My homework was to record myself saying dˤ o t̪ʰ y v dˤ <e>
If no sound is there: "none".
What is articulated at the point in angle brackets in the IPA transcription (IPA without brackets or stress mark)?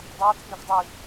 i